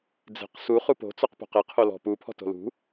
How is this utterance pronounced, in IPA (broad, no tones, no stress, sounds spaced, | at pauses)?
d͡z e̤ q s u χ u p o̤ t͡s ɔ q p o̤ q e qʰ o l ɔ̤ p u pʰ ɔ̤ t o̤ l ṳ